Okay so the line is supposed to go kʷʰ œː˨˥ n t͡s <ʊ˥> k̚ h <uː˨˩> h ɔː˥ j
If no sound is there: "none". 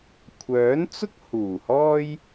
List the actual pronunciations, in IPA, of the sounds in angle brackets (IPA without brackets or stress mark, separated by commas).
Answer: ʊ˥, uː˨˩